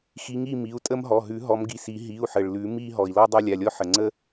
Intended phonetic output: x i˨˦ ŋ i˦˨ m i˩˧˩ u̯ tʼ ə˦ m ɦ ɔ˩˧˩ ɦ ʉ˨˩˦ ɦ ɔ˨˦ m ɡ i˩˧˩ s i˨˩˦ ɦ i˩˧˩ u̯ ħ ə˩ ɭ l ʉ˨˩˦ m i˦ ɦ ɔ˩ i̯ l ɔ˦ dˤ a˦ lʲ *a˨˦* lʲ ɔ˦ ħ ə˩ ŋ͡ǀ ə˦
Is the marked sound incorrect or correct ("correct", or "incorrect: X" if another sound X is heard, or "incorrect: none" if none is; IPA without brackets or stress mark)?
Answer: incorrect: a˩˧˩